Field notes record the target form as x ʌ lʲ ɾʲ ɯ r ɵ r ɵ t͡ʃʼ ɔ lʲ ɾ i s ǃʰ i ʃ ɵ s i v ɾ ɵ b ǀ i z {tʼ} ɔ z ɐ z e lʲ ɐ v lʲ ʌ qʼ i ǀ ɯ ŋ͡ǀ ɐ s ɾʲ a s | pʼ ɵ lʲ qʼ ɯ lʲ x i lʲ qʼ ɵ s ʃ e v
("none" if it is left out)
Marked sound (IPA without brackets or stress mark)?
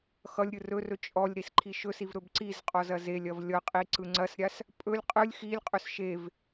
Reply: qʼ